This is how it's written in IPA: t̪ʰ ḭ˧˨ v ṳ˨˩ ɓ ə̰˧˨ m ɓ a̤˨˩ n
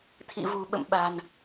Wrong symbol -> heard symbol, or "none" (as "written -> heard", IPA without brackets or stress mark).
none